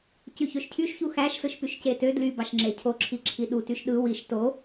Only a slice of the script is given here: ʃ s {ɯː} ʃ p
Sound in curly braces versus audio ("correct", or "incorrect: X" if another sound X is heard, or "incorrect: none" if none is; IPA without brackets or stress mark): incorrect: ɯ